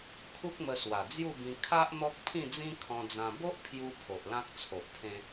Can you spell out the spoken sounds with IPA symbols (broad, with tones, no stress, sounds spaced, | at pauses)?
kʰ u˦ k̚ m ə˧ s w a˨˩ d͡z j u˥˧ b ĩ˧ kʰ a˦ ʔ n̪ ɔ˦ k̚ pʰ ĩ˥˧ d͡z ĩ˦ kʰ ɔ̃˧ d͡z ã˧ b o˦ ʔ pʰ j u˧ pʰ o˨ ʔ l ã˦ k̚ t͡sʰ o˨ ʔ pʰ ẽ˦